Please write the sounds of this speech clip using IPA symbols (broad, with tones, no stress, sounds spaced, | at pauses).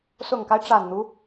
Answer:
s ʊ˨˩ ŋ k a˦ ɪ̯ ʈ͡ʂ a˨˩ n n̪ u˦